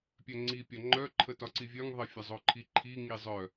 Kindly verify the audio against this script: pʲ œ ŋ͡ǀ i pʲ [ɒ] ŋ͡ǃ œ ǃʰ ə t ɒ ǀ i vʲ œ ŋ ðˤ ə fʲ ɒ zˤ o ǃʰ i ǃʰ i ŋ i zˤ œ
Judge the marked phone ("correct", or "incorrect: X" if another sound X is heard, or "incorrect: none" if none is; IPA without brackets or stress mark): correct